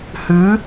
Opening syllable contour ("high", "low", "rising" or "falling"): rising